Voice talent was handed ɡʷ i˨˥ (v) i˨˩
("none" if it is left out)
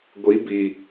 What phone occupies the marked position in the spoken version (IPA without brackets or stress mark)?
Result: b